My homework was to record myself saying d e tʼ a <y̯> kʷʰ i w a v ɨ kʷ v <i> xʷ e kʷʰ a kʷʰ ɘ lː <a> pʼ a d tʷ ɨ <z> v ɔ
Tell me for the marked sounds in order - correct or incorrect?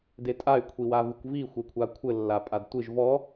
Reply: correct, correct, correct, incorrect: ʒ

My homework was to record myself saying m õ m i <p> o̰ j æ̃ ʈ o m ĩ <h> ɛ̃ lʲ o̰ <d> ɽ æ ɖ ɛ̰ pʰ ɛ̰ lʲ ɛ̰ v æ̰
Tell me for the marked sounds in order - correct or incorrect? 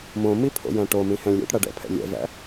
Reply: incorrect: pʰ, correct, incorrect: ʈ

